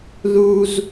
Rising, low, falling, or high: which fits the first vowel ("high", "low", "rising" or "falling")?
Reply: low